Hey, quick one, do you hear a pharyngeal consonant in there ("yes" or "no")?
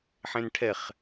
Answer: yes